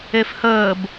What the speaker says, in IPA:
efhəːb

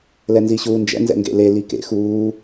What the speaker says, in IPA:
lɛnziɕuːnd͡ʒɛ̰ nzɛ̰ŋɡḛle likḛ xuː

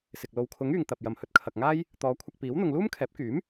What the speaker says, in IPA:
sɪ˨k̚ lo˨wkʰʊ˨˥ŋ yː˨ŋt̪ɐ˨p̚jɐ˨m hɵ˧t̚kʰɐ˨k̚ŋaː˥j | t̪ɔː˨˧kʷʰɐ˧k̚piː˨˥w n̪ʊ˨ŋluː˥mkʰɛː˨˥p̚kyː˨˥m

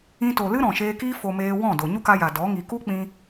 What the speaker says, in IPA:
ĩ˧to˨lɨ˦ ɾɔ̃˨ʃeː˧kiː˦ fo˧ meː˧ wɔ̃˦˨do˨ ɲu˦ka˧ja˨ dɔ˨˦ ŋi˨ku˦k͡pĩ˧

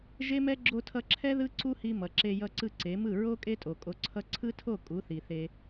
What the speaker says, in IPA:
ʒe˦mɛ˦ ɡ͡ǁo˧tʰʌ˧ǁʰɛ˦ ðɯ˦ ǀu˦hi˧mʌ˨ ǁe˧jʌ˧ǀɯ˧ ǀe˨˦mɯ˦˨ ɹo˦ kʼe˦tʼo˨ kʼo˧ǀʰʌ˦ ǀʰɯ˦tʰo˦˨ kʼu˨˦θi˨θe˧

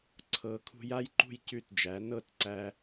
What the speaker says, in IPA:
ǀʰɤ˨˥ kʰṳ˧ja˥jǃṳ˥˨j cʉ˥˨td͡ʒæ˨˥ nɤ˥˨tǀæ˧

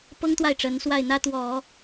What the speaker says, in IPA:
pɤ˥ŋt̪wa˥˩ɪ̯ ʈ͡ʂə˧˥nswa˥˩ɪ̯n̪ä˥t̪wɔ˨˩˦

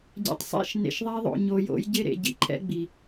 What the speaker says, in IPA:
ɟɛ̰˨tˤ sˤḛ˦˨ʃ nḛ˨ʃðˤe˦ ðˤo̰˨ ɲo˨jo̰˨˦j ɟɪ˦ɾḛ˨ ɟḭ˦ǃʰɛ̰˦ ɡ͡bi˨

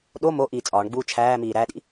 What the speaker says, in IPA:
ɗo mo ʔiːt͡sʼɒːɳɡ͡buː t͡ʃʰæːmiː ɾæɗḭ

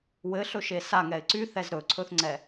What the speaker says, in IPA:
wɘɬɵʃe saŋɛɪ̯ ǀyθɛz ɾɵǀʰɵθŋ͡ǀɛ

